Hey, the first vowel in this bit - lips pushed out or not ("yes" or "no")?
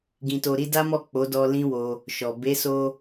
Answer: no